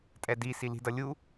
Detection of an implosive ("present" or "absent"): absent